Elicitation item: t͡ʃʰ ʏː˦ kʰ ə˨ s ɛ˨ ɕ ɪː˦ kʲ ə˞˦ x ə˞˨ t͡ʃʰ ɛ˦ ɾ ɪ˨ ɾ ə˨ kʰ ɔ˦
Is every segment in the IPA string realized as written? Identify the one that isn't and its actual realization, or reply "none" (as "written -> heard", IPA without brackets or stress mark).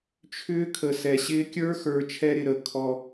none